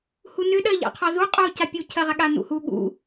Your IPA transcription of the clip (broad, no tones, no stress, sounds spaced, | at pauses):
h u n ʏ ɗ ɜ ʎ a̰ qʰ ɔ z u qʼ o c a pʲ u cʰ ɜ ʁ a ɠ a n ṵ h u ɠ ṵ